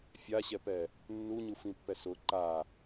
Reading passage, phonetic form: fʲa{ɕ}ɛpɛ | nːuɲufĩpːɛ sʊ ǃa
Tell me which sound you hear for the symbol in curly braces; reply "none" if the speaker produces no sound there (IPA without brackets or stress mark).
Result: ɕ